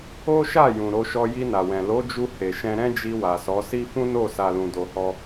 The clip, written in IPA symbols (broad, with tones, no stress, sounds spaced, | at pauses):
o˦ ʃ a˦˨ j ũ˨ ɾ o˧ ʃ ɔ˧ j i˧ n a˨ w ɛ̃˨ l o˨˦ d͡ʒ u˧ h e˨ ʃ ɛ̃˧ ɾ ɛ̃˦ d͡ʒ i˧ w a˨ s ɔ˨˦ s i˦ f ũ˦ n o˦˨ s a˨ l ũ˨ d o˧ h ɔ˦